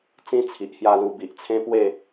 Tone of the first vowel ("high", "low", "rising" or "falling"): high